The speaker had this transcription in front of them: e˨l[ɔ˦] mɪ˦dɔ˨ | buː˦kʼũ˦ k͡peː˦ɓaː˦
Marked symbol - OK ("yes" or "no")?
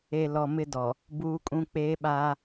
no